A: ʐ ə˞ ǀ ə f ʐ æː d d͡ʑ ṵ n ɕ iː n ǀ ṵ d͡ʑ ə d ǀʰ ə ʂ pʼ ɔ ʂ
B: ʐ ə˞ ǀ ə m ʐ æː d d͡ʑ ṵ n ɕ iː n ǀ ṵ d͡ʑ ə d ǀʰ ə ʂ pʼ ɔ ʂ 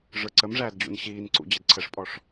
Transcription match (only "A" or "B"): B